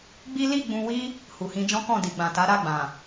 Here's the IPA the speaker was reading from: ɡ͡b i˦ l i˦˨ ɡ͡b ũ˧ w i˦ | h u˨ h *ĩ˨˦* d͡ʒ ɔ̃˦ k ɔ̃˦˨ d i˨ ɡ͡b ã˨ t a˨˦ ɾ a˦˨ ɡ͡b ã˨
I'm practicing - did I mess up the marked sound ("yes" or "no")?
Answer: yes